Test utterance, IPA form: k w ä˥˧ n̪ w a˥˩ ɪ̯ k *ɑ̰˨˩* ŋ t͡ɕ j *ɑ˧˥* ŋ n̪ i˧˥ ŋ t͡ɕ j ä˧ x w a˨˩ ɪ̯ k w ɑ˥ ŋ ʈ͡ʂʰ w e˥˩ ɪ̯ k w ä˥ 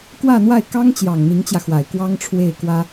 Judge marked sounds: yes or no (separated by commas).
no, no